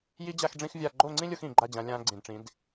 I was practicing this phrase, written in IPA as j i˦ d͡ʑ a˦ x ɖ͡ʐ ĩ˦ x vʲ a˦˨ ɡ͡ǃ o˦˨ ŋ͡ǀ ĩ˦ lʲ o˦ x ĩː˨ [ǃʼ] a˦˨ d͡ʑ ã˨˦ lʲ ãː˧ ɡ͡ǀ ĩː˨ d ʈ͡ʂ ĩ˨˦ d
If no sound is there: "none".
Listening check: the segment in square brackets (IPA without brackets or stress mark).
ɡ͡ǃ